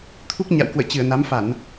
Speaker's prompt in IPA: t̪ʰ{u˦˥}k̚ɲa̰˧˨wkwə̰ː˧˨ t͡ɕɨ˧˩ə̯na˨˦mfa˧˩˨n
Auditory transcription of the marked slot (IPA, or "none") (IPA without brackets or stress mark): u˦˥